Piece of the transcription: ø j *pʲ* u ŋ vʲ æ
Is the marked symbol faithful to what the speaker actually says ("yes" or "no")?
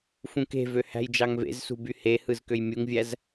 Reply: no